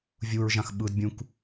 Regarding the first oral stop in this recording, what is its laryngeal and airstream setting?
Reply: implosive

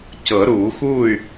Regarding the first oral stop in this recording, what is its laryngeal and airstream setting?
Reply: plain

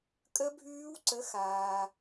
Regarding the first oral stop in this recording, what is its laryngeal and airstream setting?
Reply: ejective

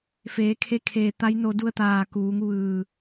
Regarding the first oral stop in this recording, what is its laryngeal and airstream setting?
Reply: aspirated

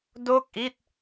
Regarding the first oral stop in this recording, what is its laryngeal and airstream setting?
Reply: plain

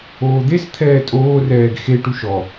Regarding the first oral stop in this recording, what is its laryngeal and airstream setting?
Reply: plain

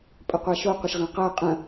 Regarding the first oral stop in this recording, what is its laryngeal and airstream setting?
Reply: ejective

